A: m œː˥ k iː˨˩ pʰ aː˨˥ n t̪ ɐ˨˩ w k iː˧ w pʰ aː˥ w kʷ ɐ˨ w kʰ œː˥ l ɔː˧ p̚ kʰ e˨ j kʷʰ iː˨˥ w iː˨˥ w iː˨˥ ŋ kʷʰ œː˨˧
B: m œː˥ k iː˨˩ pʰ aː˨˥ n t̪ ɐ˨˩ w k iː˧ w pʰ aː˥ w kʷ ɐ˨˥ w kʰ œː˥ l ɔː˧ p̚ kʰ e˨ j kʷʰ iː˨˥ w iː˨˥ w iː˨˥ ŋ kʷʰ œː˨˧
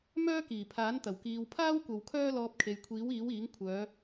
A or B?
A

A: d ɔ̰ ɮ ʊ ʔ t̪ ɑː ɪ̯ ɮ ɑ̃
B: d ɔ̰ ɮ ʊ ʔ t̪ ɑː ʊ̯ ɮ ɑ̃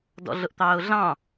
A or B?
B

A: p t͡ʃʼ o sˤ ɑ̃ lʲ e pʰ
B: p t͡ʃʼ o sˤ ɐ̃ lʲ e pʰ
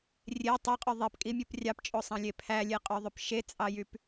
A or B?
A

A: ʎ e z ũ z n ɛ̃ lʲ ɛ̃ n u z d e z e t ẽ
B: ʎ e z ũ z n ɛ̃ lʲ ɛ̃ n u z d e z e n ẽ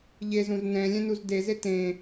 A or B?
A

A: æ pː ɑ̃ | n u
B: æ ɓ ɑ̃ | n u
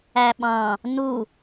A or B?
B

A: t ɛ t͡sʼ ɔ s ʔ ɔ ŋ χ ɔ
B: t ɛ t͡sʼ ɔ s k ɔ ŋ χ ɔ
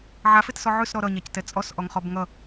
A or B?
A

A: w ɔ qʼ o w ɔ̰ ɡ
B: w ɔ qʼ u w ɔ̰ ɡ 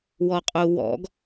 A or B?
B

